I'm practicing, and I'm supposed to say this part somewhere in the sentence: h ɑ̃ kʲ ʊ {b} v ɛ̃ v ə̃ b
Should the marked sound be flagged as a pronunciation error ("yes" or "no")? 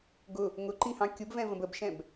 no